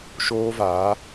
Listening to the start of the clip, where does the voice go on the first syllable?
high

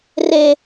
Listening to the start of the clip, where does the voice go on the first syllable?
low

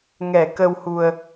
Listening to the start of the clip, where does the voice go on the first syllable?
low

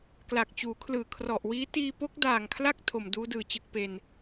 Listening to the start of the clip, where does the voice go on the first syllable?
low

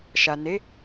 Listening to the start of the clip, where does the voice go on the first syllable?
low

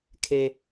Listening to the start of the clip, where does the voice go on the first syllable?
high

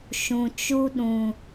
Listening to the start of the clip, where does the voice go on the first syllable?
low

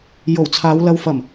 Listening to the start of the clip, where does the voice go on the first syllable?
low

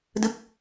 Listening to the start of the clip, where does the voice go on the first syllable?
falling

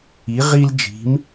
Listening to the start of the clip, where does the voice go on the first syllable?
rising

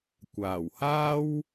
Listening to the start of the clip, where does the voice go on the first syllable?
low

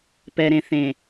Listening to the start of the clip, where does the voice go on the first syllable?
low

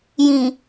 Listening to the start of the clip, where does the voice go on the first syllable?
low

